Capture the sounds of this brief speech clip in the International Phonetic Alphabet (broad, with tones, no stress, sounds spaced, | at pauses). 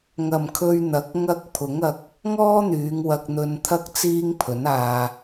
ŋ ɐ˨ m kʰ ɵ˧ ɥ n̪ ɐ˨˥ k̚ ŋ ɐ˥ k̚ pʰ ʊ˨˥ ŋ ɐ˧ k̚ | ŋ ɔː˥ n̪ yː˨˧ ŋ w ɐ˧ k̚ n̪ ɵ˧ n t̪ʰ ɐ˥ k̚ t͡s iː˥ ŋ pʰ ɵ˨˥ n aː˧